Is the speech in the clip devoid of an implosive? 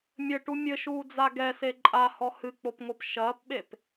no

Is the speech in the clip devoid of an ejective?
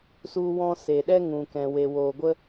yes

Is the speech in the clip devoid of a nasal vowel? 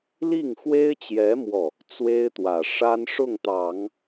yes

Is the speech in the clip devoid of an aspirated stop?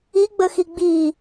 yes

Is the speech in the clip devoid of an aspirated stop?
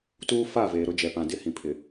no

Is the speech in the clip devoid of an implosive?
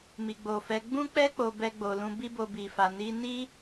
yes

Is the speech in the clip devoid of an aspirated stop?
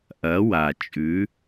yes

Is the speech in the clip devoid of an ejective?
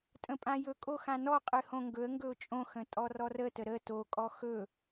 no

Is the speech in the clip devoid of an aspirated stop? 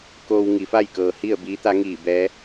yes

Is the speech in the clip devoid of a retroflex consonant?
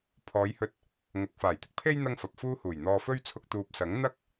yes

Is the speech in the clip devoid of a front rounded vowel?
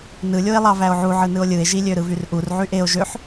no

